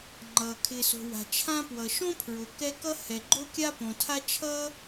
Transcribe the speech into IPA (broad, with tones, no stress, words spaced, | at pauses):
ŋ͡ǃʌː˩ kʰɪː˩so̤˩ wa̤˩t͡ʃʰã˥pwʌ˩ ʃõ˥pʰɹo˩ kɛ˥ kʌ˥hɛ˩ɡ͡ǃo˥kʲa˥ põ˩tʰa˥ t͡ʃʰʌː˥